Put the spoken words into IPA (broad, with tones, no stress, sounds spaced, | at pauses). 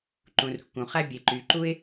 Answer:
ǃ ũ˩ r kː ũ˩ χ æ˧ bʲ e˩ ǃ y˩ ǃ u˧ ɪ̯